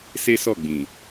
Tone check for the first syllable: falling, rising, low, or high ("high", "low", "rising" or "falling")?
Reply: high